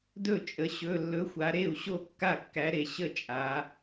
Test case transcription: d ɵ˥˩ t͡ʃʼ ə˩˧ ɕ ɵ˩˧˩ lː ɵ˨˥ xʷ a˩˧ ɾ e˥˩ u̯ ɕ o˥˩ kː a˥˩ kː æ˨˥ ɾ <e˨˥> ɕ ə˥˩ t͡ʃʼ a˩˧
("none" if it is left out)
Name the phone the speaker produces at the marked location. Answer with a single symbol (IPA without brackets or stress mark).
e˩˧